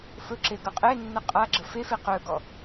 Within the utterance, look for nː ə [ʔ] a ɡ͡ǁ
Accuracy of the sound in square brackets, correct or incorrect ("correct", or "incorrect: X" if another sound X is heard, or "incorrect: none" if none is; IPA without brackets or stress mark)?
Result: incorrect: qʼ